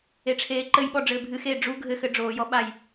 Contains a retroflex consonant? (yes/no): yes